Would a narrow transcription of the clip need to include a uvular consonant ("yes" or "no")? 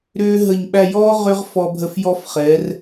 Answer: yes